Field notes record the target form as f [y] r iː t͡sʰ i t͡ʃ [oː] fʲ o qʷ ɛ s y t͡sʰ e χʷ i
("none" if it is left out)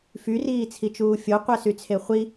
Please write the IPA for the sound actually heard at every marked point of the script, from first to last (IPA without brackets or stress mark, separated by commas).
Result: y, uː